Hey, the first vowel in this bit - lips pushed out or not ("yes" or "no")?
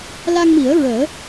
no